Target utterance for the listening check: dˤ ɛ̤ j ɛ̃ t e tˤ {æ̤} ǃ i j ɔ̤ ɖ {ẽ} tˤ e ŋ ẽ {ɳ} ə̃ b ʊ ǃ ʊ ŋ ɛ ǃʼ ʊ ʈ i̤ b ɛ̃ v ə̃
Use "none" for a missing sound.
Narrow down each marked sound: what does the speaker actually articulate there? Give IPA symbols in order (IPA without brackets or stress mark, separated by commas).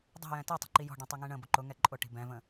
ə̤, ɛ̃, ɳ